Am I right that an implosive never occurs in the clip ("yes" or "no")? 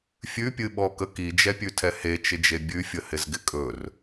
no